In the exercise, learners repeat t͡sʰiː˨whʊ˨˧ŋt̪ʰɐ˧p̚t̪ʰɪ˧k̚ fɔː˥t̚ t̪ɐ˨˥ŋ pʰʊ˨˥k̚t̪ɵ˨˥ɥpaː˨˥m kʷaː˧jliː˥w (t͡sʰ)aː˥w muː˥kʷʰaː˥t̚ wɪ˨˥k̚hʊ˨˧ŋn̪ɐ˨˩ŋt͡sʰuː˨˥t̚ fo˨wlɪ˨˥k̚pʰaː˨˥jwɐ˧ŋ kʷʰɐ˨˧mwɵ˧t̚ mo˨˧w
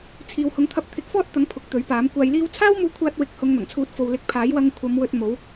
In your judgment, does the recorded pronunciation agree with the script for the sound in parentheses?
yes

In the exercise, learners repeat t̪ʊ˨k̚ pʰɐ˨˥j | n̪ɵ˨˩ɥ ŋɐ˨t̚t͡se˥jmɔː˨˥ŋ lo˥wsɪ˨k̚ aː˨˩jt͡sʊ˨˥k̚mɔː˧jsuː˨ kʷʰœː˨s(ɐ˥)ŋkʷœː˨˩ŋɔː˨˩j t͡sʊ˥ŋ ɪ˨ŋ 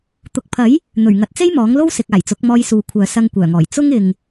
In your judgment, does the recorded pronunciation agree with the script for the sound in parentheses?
no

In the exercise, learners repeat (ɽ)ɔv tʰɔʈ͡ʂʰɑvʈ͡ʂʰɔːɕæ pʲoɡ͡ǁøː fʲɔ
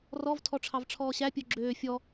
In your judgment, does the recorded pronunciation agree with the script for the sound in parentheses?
no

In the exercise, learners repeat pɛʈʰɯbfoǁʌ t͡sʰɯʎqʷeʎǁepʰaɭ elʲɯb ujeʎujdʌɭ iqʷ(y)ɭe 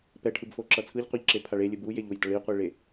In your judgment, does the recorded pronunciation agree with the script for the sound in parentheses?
no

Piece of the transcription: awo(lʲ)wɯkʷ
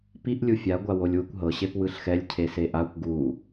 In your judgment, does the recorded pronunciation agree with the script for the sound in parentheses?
yes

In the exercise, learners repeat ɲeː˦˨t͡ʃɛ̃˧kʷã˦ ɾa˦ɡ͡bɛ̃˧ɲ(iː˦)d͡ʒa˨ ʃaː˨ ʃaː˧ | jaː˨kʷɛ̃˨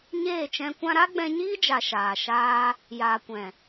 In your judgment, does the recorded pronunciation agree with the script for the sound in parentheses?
yes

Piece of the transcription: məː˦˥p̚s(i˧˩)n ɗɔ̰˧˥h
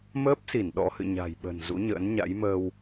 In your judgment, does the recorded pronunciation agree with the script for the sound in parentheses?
yes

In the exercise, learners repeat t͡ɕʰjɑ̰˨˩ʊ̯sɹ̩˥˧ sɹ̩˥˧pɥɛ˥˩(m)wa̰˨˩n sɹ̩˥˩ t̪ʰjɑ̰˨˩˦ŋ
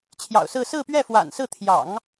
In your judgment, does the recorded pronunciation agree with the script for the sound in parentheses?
no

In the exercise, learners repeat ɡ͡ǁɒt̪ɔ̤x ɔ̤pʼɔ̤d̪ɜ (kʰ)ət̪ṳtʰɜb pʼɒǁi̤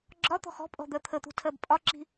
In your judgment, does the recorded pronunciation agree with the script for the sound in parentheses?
no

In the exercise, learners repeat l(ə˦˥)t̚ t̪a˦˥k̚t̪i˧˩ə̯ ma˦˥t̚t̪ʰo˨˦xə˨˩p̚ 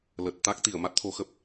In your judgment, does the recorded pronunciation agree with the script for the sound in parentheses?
no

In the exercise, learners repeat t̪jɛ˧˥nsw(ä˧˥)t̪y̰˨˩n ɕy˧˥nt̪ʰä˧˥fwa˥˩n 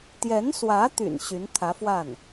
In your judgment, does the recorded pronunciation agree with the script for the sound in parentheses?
yes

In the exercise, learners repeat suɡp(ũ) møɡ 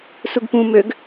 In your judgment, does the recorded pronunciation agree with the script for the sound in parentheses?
yes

